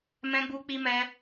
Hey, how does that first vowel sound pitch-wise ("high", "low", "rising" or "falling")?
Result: high